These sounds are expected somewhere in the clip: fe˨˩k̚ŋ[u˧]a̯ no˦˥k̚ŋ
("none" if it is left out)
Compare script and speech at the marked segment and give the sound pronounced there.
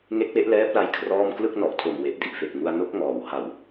u˧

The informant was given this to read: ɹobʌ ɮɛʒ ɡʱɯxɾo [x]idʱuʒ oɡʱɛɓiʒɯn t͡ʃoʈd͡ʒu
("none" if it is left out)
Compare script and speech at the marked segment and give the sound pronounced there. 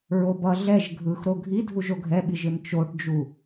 ɡʱ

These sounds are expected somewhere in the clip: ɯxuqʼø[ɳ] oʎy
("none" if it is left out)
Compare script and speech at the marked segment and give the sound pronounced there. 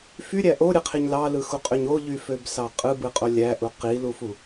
ɲ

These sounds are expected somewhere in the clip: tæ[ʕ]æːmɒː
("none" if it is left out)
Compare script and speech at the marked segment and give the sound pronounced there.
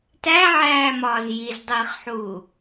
ʕ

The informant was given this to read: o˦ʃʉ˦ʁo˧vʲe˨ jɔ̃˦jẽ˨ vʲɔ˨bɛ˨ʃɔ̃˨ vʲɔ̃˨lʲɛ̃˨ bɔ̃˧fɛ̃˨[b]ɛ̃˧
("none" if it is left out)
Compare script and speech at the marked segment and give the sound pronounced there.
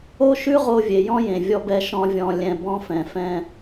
f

